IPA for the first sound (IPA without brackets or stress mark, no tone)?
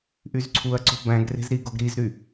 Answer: ʔ